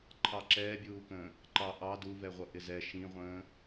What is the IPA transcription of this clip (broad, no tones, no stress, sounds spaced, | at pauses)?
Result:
ǃʰ ɑ ǁ ɛː bʲ uː k ə̃ː | ǃ ɑ ʔ ɑ d u v ɛ ʁʷ ʌ ʔ ɪ z ɛ ʃ ĩ ʁʷ ə̃ː